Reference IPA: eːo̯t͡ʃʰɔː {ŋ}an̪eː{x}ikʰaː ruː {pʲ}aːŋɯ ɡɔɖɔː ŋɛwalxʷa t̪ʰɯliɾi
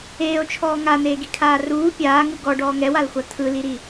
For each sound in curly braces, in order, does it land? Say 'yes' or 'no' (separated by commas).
yes, no, yes